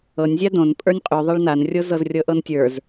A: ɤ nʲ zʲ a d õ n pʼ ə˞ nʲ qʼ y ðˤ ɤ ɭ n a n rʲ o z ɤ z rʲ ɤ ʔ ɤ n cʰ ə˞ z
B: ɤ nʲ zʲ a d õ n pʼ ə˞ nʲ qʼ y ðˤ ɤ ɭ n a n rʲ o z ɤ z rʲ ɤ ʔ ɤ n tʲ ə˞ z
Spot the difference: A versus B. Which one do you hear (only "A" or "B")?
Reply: B